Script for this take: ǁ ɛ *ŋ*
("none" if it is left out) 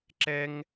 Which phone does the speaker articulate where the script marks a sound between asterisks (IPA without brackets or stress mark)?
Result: ŋ